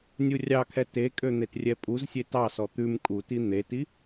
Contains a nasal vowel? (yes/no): no